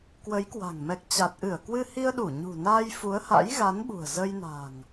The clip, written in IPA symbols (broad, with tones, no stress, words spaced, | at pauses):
kwə˨˦jkwa̤˨˩ŋ mɛ˨˩k̚t͡ɕa˨˩t̚ʔɨ˧˩ə̯ kwɨ˧hi˧ə̯ɗu˧˩ ɲṳ˨˩ naː˧jfu˨˦ə̯ha̰˧˥j ɣa˨˦nɓṳ˨˩ə̯ zə˧jna̤˨˩ŋ